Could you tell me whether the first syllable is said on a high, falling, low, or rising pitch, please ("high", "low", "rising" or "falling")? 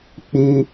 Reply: high